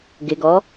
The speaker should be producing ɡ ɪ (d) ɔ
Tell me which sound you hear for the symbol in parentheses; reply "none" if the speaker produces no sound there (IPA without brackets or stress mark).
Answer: ɡ